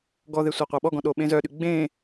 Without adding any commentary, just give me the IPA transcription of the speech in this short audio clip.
ɡ ɔ ð e sʷ ɑ qʷ ɑ ɓ ɔ ɡ ɔ̃ ɗ o ɓ ẽ z œ ɗ y ɡ͡b ẽ

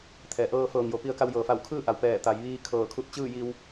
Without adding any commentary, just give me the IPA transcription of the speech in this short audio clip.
t̪ʰ ɛː˩ ʔ ɤː˧ f ɤː˩ ŋ j o˩˧ p i˧ ə̯ k a˧ w j ɤː˩ f a˧˩ w kʰ ɯː˥˨ ʔ a˩ w p ɛː˧˩ t̪ a˩˧ j ʋ iː˧ kʰ ɤː˧˩ kʰ u˧˥ t̚ t͡ɕ ɯː˥˨ j i˧ w

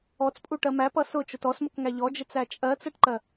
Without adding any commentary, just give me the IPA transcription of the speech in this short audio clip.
ɔ t͡s pʼ u ʈ ɜ m æ p ʌ s ʊ t͡ʃ ʊ t ɔ s m ʊ k ŋ æ ʎ ɔ d͡ʒ ɪ t͡s æ t͡ʃʼ ɜ t͡s ɜ ʈ ǃ ɜ

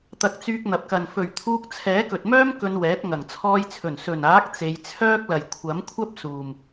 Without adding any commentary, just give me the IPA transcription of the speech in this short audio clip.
t̪ ɐ˧ k̚ t͡s yː˧ k̚ n̪ ɐ˨ p̚ k ɐ˨ n f ɵ˨˩ ɥ t̪ʰ uː˧ k̚ t͡sʰ ɛː˨˥ k ɵ˨ t̚ m œː˥ m k ɵ˧ n w ɛː˨˥ t̚ ŋ ɐ˨˩ ŋ t͡sʰ ɔː˧ j t͡sʰ ɵ˨˩ n s ɵ˨˩ n aː˨˥ k̚ t͡s e˨˧ j t͡sʰ œː˥ k̚ l ɐ˨ j kʷʰ ɐ˨˥ m kʷʰ ɐ˥ p̚ s uː˨ m

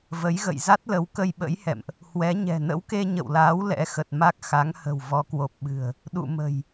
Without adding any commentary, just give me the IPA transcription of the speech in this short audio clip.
v ə˨˦ j ɣ ə̰˧˨ j z a˦˥ t̚ l ə˨˦ w k ə˧ j ɓ ə̰˧˥ j h ɛ̰˧˨ m ʔ | h w ɛ˨˦ ɲ ɛ̤˨˩ n ə̰˧˥ w k e˧ ɲ ə̰˧˨ w l aː˨˦ w l ɛ̰˧˥ x ə˨˩ t̚ m a˦˥ k̚ x a˨˦ ŋ h ə̤˨˩ w v ɔ˨˦ k w o˨˩ p̚ ɓ ɨ̤˨˩ ə̯ | ɗ ṵ˧˨ m ə̤˨˩ j

